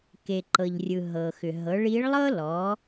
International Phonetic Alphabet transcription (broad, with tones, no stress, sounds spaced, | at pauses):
k e˩ ǃ ɤ˩ ʎ rʲ ɯ˩ ɦ ɤ˩ x ʏ˩ ɦ ɤ˩˧ ɭ i˧˥ ɭ lˠ ɤ˥ l ɔ˩˧